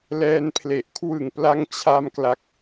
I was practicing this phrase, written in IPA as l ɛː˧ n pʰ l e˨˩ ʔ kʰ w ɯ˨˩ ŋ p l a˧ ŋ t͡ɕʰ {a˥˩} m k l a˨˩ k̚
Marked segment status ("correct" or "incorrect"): incorrect